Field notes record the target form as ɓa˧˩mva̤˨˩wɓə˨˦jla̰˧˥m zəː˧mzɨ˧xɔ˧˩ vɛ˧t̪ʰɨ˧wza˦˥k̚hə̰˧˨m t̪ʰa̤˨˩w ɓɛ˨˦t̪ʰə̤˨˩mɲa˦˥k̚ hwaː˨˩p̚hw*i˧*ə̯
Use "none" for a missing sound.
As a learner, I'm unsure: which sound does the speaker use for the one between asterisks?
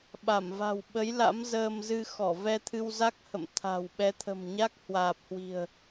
i̤˨˩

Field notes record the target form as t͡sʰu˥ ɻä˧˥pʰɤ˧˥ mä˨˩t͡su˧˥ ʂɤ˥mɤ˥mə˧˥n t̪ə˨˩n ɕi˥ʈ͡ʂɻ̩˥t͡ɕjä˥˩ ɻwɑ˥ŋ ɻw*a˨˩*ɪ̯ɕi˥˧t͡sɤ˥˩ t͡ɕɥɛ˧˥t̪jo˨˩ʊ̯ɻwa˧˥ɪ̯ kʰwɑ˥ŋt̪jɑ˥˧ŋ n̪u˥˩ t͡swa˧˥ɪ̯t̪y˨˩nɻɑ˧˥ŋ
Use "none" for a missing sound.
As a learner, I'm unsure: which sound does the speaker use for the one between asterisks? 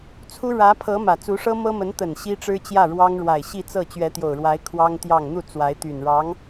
a˨˩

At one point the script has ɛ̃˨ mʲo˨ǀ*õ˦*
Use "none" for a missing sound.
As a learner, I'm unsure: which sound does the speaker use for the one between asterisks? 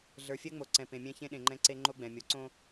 õ˦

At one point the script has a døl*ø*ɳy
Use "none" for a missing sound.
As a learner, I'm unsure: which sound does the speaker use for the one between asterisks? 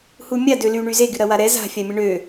y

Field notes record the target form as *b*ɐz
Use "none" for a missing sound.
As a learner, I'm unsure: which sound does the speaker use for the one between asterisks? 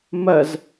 m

